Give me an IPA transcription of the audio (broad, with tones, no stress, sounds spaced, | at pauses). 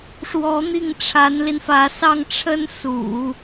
ʂ w ɔ˧˥ n̪ i˥˩ ŋ ʈ͡ʂʰ a˧˥ n l i˧ n f ä˧˥ s ɑ˥˩ ŋ ʈ͡ʂʰ ə˥ n s ṵ˨˩˦